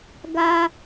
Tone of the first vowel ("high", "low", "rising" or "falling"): high